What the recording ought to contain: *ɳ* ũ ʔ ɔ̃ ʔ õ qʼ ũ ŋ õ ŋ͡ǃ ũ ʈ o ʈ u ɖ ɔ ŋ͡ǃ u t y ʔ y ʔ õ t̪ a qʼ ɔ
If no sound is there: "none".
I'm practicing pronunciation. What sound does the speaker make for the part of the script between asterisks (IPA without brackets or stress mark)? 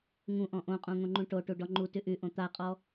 ŋ